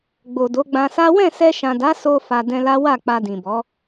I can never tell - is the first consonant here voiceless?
no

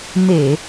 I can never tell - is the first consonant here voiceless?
no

